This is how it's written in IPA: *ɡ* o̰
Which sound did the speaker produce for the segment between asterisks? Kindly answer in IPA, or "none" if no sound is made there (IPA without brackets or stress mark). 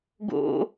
ɡ